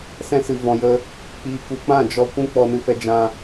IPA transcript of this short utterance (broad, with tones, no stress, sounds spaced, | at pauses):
s ɛ̃˧ s ɨ˨ v ɔ̃˨ j ə˧ | k͡p iː˨ k u˨ k͡p ã˦˨ d͡ʒ ɔ˧ kʷ ũ˦ k͡p ɔ˧ n ɨ˧ f ɛ˧ d͡ʒ ã˧